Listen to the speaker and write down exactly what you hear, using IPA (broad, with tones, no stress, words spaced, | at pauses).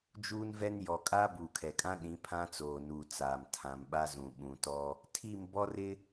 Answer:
d͡ʒuː˦nvɛ˦n jɔ˨ kʼaː˦buː˨kʰɛ˨kʼã˦ ɗĩ˨˦pʰã˦t͡soː˨nuː˨ t͡saː˨m tʰã˨mɓa˦zũ˨ ɓũ˨tɔ˦ | tʰi˦˨m bɔ˦rɪ˦